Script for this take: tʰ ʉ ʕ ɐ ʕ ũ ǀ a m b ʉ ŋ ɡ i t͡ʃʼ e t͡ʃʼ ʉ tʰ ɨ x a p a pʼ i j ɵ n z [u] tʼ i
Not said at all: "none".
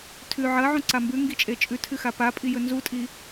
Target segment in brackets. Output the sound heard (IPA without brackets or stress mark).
u